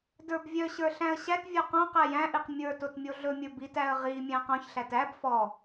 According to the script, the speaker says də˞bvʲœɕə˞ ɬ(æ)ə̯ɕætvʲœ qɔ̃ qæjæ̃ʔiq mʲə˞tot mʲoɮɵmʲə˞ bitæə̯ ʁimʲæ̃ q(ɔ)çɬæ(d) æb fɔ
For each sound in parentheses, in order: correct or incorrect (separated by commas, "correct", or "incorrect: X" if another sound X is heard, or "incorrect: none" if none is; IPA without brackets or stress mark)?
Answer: incorrect: æ̃, incorrect: ɔ̃, incorrect: t